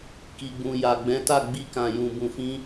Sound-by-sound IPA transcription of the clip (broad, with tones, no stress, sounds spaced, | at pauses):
k i˨ ɡ͡b ũ˨ j a˨ ɡ͡b ɛ̃˨˦ t a˦˨ ɡ͡b i˧ k ã˨ j ũ˨ b ũ˨ f ĩ˧